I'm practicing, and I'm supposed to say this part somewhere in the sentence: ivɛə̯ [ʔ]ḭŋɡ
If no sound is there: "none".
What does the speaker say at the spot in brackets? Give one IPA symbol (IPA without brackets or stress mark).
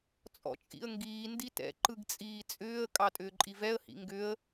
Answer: h